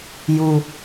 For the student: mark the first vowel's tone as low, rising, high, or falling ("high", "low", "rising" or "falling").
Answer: low